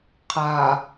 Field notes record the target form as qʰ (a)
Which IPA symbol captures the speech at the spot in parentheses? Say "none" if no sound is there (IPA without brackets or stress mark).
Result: a